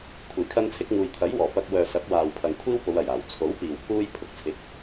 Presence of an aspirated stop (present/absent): present